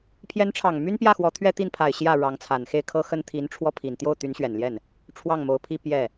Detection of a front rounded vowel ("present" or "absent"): present